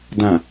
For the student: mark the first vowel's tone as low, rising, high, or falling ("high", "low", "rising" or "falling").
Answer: low